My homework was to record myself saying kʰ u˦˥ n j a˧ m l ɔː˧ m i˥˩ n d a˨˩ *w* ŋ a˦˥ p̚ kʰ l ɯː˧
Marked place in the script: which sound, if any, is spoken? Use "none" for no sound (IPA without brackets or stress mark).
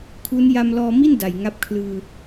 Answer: j